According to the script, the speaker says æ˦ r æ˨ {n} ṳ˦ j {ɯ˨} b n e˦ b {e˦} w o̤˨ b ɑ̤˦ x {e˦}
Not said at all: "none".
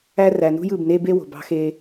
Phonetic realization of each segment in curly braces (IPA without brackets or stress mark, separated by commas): n, ɯ˨, e˦, e˦